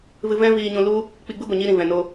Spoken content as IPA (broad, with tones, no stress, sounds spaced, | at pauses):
v ɨ˧ v ɛ̃˦ v iː˧ ɲ ũ˧ l u˦ | k͡p i˧ ɡ͡b ɨ˦ ɡʷ ɛ˨ ɲ i˦ ɾ ĩ˨ v ɛ̃˨ n o˧